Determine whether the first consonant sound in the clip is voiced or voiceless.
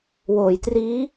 voiced